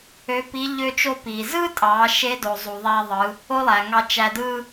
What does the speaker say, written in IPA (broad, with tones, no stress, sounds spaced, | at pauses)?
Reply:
ø˧˥ p i˧˥ ʎ ø˧ t͡ʃ o˧ p i˩ z ɯ˥ tʼ ɑ˩˧ ʃ e˧˥ d o˩ zˤ u˩ ðˤ æ˧ ðˤ ɯ˩˧ | o˥ lˠ æ˩ ŋ ɑ˧ t͡ʃ æ˧ d ɯ˥